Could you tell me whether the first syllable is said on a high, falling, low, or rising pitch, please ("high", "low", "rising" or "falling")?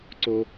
high